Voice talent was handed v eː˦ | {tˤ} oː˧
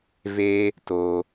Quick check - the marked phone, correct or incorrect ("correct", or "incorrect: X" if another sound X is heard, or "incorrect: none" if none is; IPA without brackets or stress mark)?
incorrect: t